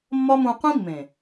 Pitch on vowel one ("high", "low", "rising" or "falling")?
high